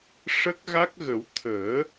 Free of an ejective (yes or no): yes